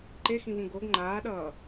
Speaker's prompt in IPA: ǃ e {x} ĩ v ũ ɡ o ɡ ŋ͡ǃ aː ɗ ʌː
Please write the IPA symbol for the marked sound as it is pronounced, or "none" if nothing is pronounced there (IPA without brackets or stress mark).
x